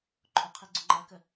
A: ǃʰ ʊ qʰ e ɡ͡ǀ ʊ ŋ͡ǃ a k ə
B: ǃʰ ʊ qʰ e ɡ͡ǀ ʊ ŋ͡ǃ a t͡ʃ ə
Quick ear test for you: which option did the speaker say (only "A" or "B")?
A